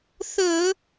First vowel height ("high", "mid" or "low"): mid